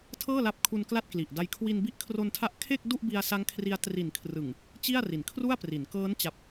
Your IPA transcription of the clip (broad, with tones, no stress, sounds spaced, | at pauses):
tʰ ɤː˥˩ l a˦˥ p̚ kʰ u˧ n k l a˥˩ t̚ k l i˨˩ ʔ d a˦˥ j kʰ w i˧ n b i˦˥ ʔ kʰ r o˧ n tʰ a˦˥ ʔ kʰ e˥˩ k̚ d u˥˩ ʔ b i˧ a̯ s a˦˥ ŋ kʰ r i˧ a̯ t r i˨˩ n kʰ r ɯ˨˩ ŋ | t͡ɕ i˥˩ a̯ r i˩˦ n kʰ r u˥˩ a̯ p r i˩˦ n k ɤː˦˥ n t͡ɕ a˨˩ p̚